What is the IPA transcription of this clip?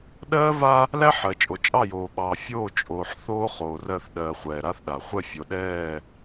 ɗ ɜː˦ v a˦ | l æ˦ ħ ɜ˨ t͡ʃʼ o˨ t͡ʃʼ ɑ˦˨ j oː˨ ɓ ɑː˨ fʲ oː˦˨ t͡ʃʼ oː˨ ħ θ oː˦ χ oː˨ r ɜ˦˨ θ ɗ ɜː˨ χʷ ɛː˨ ɾ a˦ θ ɗ a˨ χʷ ɛ˦˨ fʲ o˨ ɗ ɛː˦˨

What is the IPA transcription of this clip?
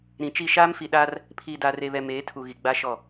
ɾ ĩ˨ t͡ʃ i˦˨ ʃ aː˦ m f i˨ ɗ aː˦ r | pʰ iː˨ d aː˨ r e˨ β ɛ˨ m eː˨˦ tʰ u˨ ɣ i˨ ɡ͡b a˦ ʃ ɔ˦˨

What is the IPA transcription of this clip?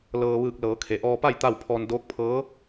l ɤː˧ ʋ ɯː˧˩ k̚ l ɤː˩˧ kʰ e˩ ʔ ɔː˧ p a˥˨ j t̪ a˥˨ w pʰ ɔː˧ n d oː˧˥ k̚ pʰ ɤː˧˥

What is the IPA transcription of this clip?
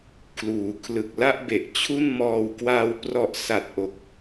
kʰ l uː˩˦ kʰ l ɯ˨˩ k̚ l a˥˩ ʔ b e˨˩ ʔ t͡ɕʰ u˥˩ n m ɔː˧ w k w a˧ w p r ɔ˨˩ ʔ s a˨˩ t̚ ʔ o˨˩ k̚

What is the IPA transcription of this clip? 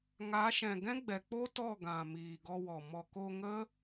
ŋ a˨˦ ʃ ɛ̃˨ ɡ ɛ̃˦ ɡ͡b ɛ˨ k͡p o˦ t ɔ˦˨ ɡ ã˨ m iː˨ ɡ ɔ˧ w ɔ˨ m ɔ˨ k o˧ ŋ ə˦

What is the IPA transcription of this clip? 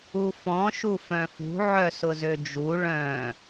u f ɔ̃ ʃ u f œ̃ f ṳ ʕ œ s ʊ z ø d͡ʒ u ɭ œ̃

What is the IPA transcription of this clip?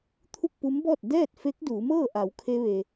t̪ʰ u˥˨ k̚ p u˧˥ m b ɔː˥˨ t̚ d ɛː˥˨ t̚ f e˧˥ k̚ d uː˩˧ m ɤː˥˨ ʔ a˩˧ w kʰ e˧ ʋ e˩

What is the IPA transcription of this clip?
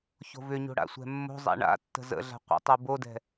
ç o̤ v ʏ ɲ o̤ ɽ a̰ sʷ ɛ̤ mː o̤ zˤ a̰ ɳ a̰ tː ə̤ z ə̰ ɮ a̤ qʷ ə̰ tˤ u b o d ɛ̤

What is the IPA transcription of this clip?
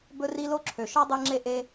b ɵ˦ r i˦ l o˥ ǁʰ ø˩ ʃ ɔ˥ dˤ ɛ˦ ŋ͡ǁ e˦ ʔ e˦

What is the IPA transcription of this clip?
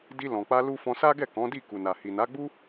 d i˧ l ɔ̃˨ k͡p a˧ l u˦ f ɔ̃˧ s a˦ ɡ ɛ˦˨ k ɔ̃˨˦ d i˦˨ k u˨ n a˨ h i˨ n a˨˦ ɡ͡b u˦

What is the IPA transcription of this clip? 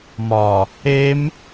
m ɒ | e m

